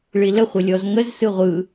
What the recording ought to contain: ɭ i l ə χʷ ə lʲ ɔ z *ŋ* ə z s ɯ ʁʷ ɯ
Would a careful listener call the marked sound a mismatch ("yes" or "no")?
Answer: no